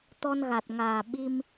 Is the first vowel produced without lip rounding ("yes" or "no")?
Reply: no